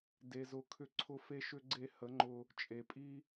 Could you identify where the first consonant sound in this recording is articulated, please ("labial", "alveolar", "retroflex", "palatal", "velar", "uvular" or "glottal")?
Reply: alveolar